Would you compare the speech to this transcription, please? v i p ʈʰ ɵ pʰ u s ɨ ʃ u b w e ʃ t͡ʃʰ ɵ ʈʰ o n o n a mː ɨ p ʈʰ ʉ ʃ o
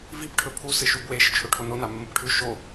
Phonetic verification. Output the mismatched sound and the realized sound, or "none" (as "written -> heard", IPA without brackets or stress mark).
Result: none